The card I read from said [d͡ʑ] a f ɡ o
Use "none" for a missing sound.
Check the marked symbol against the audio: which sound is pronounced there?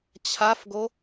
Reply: t͡ɕʰ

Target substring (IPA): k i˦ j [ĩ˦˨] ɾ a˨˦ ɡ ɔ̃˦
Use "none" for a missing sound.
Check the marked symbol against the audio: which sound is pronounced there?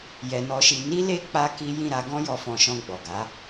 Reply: ĩ˦˨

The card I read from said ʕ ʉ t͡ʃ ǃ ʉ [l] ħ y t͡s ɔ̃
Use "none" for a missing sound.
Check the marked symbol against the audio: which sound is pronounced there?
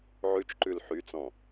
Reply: l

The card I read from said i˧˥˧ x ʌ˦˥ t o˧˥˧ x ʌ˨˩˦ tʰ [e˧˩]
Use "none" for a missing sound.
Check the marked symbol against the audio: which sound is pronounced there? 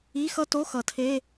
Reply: e˧˥˧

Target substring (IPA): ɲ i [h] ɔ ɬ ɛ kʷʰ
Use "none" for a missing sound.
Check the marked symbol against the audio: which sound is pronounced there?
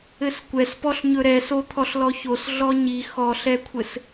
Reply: x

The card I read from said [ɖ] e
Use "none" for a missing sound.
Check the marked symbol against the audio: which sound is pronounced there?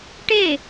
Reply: ʈ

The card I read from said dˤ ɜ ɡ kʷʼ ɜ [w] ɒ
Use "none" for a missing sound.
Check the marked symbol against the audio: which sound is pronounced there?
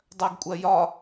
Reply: j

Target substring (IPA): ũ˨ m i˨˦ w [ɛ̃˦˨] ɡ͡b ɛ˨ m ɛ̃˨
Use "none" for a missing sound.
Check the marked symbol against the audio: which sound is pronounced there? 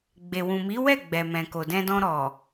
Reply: ɛ˦˨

